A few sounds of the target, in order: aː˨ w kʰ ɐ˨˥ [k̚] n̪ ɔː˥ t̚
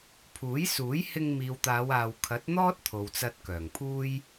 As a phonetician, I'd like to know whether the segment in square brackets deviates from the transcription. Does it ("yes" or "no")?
yes